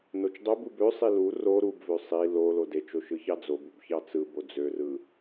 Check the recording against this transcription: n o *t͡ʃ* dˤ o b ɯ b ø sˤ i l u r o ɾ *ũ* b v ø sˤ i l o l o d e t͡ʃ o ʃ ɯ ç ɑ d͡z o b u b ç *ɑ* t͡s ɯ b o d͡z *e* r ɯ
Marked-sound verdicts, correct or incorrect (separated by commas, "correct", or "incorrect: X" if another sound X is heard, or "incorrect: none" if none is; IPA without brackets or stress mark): correct, incorrect: u, correct, incorrect: ø